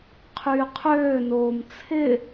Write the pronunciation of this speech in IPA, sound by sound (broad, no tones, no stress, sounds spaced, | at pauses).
qʰ yː qʰ øː n oː m t͡sʰ ɪ